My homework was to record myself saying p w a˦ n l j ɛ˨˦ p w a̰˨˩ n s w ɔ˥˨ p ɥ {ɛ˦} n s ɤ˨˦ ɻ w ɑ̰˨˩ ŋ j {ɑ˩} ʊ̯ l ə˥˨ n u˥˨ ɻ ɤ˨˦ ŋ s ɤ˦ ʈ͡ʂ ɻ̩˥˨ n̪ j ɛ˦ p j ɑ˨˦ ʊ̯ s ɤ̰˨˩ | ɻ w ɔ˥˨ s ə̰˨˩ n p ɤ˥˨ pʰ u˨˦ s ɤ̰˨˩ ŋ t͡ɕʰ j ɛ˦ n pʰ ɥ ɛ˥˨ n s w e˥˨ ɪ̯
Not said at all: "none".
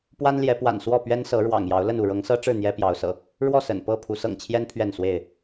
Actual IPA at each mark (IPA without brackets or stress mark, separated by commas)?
ɛ˦, ɑ˨˦